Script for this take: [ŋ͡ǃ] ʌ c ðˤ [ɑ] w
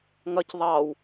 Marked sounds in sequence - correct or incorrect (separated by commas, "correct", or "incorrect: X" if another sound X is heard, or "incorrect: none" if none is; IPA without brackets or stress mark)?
incorrect: ŋ, correct